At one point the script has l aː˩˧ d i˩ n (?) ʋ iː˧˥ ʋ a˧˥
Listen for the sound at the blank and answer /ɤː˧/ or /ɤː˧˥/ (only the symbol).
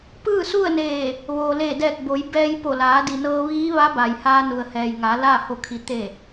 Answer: ɤː˧